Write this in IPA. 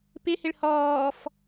p ɪ h ɪ ɭ h ɔː f

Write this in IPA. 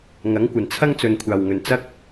ŋ ɐ˨˥ ŋ kʷ ɐ˨ n t͡sʰ ɐ˥ ŋ t͡s ɵ˨ n kʷʰ aː˨ w ŋ ɵ˨ n t͡s ɐ˥ k̚

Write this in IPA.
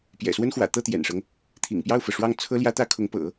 p j ɛ̰˨˩ s w ə˥ n x w ä̰˨˩ t̪ ɤ˥˩ t̪ j ɛ̰˨˩ n ʂ ɤ˦ ŋ | t̪ʰ ḭ˨˩ ŋ p j ɑ˥˩ ʊ̯ f ɤ˩ ʂ w ɑ˥˩ ŋ t͡sʰ ɤ˥ l j ä˥ t̪ ä˥ kʰ ʊ˧˥ ŋ p ɤ̰˨˩˦

